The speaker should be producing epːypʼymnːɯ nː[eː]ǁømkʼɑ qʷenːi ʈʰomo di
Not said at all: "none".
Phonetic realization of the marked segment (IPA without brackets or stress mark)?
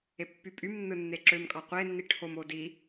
e